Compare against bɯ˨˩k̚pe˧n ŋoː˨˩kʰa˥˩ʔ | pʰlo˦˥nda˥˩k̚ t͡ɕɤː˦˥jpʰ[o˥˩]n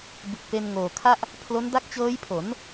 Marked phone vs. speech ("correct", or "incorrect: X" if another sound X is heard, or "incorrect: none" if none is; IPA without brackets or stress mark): incorrect: o˩˦